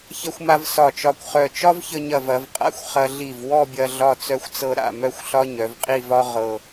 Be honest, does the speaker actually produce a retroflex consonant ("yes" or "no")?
no